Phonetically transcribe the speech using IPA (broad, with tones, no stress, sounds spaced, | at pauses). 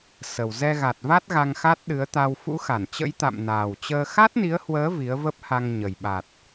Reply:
s ə˨˩ w z ɛ˧ ɣ a˨˩ t̚ v a˦˥ t̚ ɣ a˧ ŋ x a˦˥ t̚ ɗ ɨ˨˦ ə̯ t̪ a˧ w f ṵ˧˥ x a˧˩ n t͡ɕ ə̰˧˥ j t̪ a̰˧˨ m n aː˨˩ w t͡ɕ əː˧ x a˦˥ t̚ n i˨˦ ə̯ h w əː˨˦ v i˨˦ ə̯ v ə˦˥ p̚ h a˧ ŋ ɲ ə˨˩ j ɓ a˨˩ t̚